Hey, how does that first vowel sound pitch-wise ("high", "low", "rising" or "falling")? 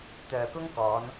low